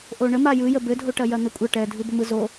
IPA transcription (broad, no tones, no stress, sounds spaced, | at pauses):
ʔ o ɳ ə m a j ɯ j ə b ɘ dʱ o ʈ ɐ j ɐ n̪ ə kʷʼ ɐ ʈ ɛ dʱ ɯ b ə m ɯ z o